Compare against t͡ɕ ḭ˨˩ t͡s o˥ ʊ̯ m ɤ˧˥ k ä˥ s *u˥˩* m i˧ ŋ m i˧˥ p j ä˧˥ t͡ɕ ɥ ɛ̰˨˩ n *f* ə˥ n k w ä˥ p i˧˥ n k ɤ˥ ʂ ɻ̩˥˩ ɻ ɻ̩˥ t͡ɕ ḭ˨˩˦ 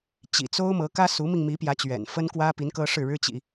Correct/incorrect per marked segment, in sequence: incorrect: u˧˥, correct

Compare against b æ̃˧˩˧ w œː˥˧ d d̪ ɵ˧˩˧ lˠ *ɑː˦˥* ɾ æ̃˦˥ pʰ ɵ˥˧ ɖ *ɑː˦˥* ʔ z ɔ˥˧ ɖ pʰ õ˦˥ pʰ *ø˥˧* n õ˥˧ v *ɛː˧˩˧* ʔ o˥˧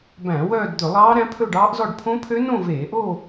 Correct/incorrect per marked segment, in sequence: correct, correct, incorrect: ø˦˥, incorrect: eː˧˩˧

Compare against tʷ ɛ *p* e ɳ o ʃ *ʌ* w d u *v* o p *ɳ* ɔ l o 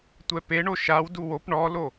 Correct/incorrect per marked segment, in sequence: correct, incorrect: a, incorrect: w, correct

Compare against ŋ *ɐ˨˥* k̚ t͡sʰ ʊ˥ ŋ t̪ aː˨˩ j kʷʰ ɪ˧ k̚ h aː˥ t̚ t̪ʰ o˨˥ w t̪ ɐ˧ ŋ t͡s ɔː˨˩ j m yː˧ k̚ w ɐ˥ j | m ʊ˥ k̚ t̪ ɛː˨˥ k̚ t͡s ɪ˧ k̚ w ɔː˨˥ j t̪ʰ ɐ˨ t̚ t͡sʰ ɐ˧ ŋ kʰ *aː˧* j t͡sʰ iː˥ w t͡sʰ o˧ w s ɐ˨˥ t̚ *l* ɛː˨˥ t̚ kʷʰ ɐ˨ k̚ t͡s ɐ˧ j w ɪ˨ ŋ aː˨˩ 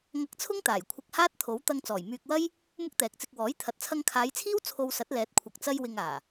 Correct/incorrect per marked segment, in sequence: incorrect: ɐ˧, incorrect: aː˨˧, correct

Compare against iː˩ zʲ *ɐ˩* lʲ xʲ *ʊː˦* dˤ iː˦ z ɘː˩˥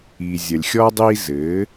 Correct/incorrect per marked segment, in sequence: correct, incorrect: ɔː˦

